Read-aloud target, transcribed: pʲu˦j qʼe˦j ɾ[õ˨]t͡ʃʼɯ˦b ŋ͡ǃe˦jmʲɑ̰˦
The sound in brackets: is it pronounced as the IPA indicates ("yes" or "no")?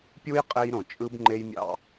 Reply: yes